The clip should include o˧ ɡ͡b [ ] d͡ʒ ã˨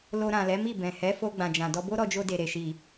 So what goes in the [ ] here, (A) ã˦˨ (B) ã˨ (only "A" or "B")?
B